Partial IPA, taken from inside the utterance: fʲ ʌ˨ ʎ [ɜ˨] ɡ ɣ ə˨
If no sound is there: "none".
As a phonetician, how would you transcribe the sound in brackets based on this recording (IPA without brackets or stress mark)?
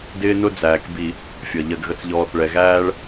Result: ɜ˨